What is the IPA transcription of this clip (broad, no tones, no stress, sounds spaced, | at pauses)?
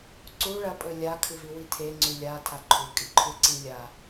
ǀ u ɭ ɐ pʼ ɵ lʲ a kʰ ɨ v i w i tʰ e ŋ͡ǀ ʉ lʲ a tʰ a ǃʰ u kʼ i ǃʰ ʉ ǀ i lʲ a